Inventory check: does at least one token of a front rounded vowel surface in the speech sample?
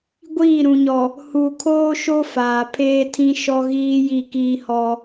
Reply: no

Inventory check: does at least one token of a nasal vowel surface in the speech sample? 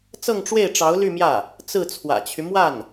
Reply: no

